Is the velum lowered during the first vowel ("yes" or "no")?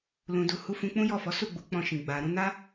yes